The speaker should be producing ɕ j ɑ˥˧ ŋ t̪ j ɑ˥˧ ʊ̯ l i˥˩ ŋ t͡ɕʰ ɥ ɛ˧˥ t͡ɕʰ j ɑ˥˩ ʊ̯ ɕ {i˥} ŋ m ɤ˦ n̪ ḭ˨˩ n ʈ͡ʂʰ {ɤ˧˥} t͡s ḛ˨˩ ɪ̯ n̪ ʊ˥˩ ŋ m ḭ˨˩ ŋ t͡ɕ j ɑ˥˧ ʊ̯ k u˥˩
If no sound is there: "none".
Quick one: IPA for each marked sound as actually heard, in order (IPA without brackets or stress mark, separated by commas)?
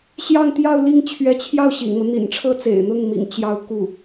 ḭ˨˩, ɤ˥